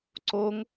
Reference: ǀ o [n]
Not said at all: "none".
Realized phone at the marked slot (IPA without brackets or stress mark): ŋ